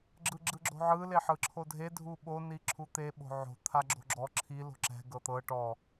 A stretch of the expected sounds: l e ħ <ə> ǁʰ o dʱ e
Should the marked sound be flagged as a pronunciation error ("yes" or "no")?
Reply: yes